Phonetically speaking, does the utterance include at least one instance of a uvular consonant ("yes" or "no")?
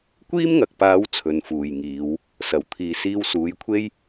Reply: no